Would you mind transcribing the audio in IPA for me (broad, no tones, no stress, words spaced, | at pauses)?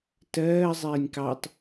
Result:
tɜː zˤiːnʲkɑtˤ